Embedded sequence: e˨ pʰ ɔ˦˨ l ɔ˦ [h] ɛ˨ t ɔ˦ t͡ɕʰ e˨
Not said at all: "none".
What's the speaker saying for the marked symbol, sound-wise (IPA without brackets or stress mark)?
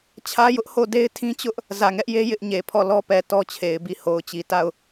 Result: p